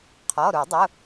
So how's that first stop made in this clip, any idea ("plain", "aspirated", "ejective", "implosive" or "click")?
aspirated